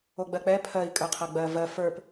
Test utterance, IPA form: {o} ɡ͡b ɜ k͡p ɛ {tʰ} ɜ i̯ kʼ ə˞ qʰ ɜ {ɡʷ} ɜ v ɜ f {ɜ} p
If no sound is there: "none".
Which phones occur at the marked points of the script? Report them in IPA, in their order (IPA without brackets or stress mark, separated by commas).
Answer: o, pʰ, ɡ͡b, ə˞